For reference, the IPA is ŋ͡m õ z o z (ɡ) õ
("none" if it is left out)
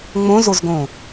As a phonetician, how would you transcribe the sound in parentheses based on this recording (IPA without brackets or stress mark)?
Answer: ɡ